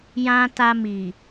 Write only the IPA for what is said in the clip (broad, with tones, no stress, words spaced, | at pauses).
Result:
jã˦ ta˧mi˨